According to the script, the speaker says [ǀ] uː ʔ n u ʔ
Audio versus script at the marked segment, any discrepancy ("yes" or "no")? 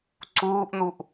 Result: no